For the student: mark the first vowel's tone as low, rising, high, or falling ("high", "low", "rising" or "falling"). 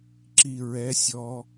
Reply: low